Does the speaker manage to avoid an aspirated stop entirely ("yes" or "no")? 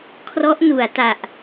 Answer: no